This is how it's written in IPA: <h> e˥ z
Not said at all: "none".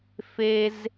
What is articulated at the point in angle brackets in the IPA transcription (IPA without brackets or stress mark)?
f